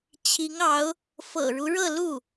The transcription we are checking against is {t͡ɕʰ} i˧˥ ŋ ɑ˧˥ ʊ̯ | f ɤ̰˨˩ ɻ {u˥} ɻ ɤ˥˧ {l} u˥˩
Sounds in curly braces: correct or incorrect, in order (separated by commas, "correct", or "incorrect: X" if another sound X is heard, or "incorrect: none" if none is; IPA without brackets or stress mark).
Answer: correct, incorrect: u˦, correct